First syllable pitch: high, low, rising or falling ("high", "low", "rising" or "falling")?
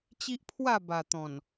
high